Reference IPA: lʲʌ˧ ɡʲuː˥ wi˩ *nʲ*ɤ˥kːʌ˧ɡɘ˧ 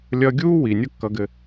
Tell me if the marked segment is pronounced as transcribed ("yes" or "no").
yes